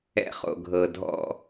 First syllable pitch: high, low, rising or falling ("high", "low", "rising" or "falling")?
high